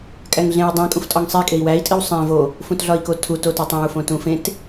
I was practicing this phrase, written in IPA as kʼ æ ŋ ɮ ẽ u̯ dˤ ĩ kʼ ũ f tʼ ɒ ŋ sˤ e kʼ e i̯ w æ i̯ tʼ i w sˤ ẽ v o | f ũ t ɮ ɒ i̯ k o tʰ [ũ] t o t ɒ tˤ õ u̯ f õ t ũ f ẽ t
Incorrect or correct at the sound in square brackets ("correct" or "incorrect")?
incorrect